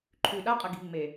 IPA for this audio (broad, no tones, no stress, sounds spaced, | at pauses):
ǃʰ ʉ ɗ a qʼ ɐ ɡ i̤ ŋ͡m e